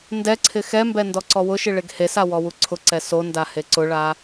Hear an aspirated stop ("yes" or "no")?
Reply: yes